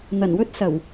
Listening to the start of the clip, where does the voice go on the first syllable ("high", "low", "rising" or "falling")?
low